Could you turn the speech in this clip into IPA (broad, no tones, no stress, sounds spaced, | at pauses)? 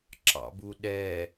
ǁ ɑ̰ b u ɗ ɛ